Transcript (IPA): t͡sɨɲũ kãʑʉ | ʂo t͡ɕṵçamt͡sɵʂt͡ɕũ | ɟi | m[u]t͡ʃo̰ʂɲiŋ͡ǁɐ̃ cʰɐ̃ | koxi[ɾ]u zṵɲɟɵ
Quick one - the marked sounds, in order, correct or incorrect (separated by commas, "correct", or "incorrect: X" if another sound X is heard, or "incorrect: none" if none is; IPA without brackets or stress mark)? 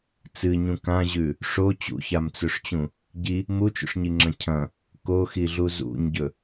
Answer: correct, incorrect: ɮ